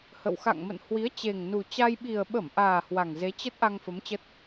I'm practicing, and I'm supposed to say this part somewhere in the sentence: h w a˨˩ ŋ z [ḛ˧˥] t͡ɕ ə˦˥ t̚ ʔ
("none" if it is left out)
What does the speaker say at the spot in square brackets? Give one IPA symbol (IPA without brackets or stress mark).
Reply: e˨˦